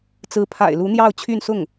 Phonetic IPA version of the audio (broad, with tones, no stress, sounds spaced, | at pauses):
t͡s ɹ̩˧˥ pʰ a̰˨˩ ɪ̯ l u˧˥ n̪ j ɑ˥˧ ʊ̯ t͡ɕʰ y˥˧ n s ʊ˥˩ ŋ